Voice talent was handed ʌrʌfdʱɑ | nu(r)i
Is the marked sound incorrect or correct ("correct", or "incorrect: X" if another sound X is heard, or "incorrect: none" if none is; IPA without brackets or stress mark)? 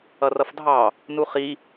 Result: incorrect: χ